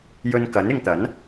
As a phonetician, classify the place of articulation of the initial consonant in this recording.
palatal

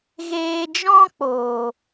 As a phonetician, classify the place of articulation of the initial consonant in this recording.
velar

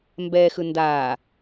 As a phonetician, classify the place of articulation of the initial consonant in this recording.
labial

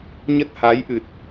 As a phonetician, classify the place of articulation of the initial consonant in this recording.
palatal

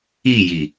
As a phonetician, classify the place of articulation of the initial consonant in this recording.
palatal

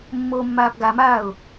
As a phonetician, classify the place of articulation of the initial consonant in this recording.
labial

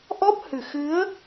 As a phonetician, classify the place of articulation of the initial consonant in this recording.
glottal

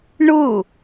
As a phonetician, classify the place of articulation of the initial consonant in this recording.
retroflex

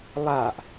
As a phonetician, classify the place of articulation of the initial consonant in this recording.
alveolar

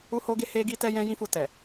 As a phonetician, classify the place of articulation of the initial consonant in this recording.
glottal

